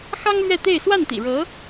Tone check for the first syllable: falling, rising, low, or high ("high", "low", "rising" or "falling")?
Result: high